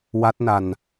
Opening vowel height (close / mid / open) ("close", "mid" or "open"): open